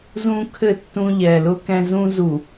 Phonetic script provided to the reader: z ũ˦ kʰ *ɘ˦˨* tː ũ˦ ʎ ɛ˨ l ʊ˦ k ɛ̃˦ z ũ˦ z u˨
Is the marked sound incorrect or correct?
correct